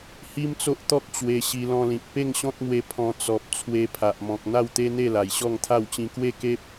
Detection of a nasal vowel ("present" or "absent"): present